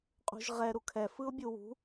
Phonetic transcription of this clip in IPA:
qʼ ṳ ʒ ʁ ɛ ɾ u kʰ ɛ f ɯ ʊ̯ bʲ u w ṳ

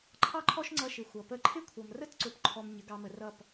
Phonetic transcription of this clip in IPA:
ǃʰ ɑ˥ ǃʰ ɔ˥ ʃ ŋ͡ǀ ʌ˧ ʃ ɪ˩ xʷ ʌ˩ p ə˥ ǃʰ ɪ˥ kʷʰ ʌ˩ m r ə˥ t ǀ ʊ˩˥ p ǃʰ ɔ˧ m ɲ ə˩˥ ɡ ɑ˧ m ə˩ r ʌ˥˩ p

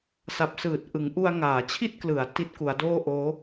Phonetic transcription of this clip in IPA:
s a˨˩ p̚ s ɯː˨˩ t̚ ʔ ɯ˩˦ ŋ ʔ u˧ a̯ ŋ aː˩˦ t͡ɕʰ i˥˩ t̚ k l ɯ˩˦ a̯ t i˦˥ t̚ k u˩˦ a̯ d oː˥˩ ʔ oː˦˥

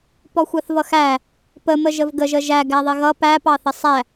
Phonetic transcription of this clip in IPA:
p ɔ xʷ ɑ θ v ʌ x æ | p ə m ə ʒ ə v ɡ ə ʒ ə ʒ æ ɡ æ ðˤ ɪ ɣ ʌ p æ p ɑ θ ə sˤ æ

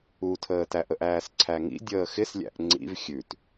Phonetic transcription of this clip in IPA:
u tʰ əː t æ ʔ ə ʔ æː s ǀʰ æ ŋ ḭ dʲ əː x ɪ s lʲ æ̰ ʔ ŋ͡ǀ ḭ v xʲ ʉ t

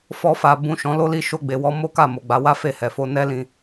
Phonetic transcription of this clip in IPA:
f ɔ˧ f a˨ b ũ˨ ʃ ɔ̃˨˦ l o˦ l i˦˨ ʃ o˧ ɡ͡b e˨ w ɔ˧ m o˦ k a˦˨ m o˨ ɡ͡b a˨˦ w a˦ f e˦˨ h ɛ˨ f o˧ n ɛ˦ l ĩ˧

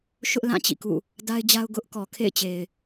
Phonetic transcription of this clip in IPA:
ʃ ʊ˦ ʔ l ã˦˨ t͡ɕ ḭ˦˨ k ṵ˦˨ | d a˦ ɪ̯ d͡ʑ a˦ ʊ̯ ɡ ʊ˦ ʔ k ɔ˨ kʰ ḛ˦˨ ɪ̯ t͡ɕ e˨ ɪ̯

